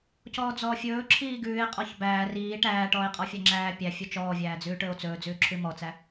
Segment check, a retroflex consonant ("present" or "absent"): present